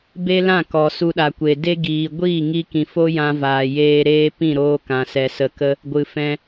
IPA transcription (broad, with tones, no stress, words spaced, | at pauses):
be˦ lã˦˨kɔ˨ su˧ɗa˨kʷe˨ de˦ ɡiː˨ɡʷiː˦˨ŋi˧kĩ˨ fo˦jã˧vaː˨ jeː˧ɾeː˦pĩ˦˨ɾoː˧ kã˨sɛ˨sə˨kə˧ | ɡʷɨ˨fɛ̃˧